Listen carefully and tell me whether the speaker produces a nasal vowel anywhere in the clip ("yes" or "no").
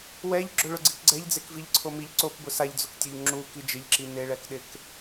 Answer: no